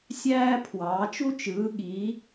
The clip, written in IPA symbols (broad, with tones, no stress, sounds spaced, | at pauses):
sʲ æː˥ pʰ w ɑː˨˦ t͡ʃ u˥ t͡ʃ ɯː˨˦ ɠ i˨˦